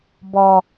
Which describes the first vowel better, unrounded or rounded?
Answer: rounded